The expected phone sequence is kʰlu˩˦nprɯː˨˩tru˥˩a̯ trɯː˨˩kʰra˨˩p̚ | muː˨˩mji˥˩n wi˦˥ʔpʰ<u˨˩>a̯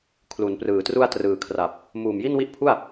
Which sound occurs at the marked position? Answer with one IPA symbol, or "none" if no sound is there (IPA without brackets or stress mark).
u˥˩